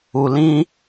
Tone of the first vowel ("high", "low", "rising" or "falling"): low